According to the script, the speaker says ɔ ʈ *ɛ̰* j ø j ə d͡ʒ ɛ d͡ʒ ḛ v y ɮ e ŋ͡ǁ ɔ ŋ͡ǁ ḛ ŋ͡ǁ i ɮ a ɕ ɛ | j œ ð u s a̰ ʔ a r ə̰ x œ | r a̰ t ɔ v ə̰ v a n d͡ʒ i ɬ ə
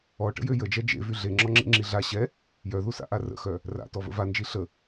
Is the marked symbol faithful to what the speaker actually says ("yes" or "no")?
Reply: no